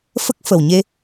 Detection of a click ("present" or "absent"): absent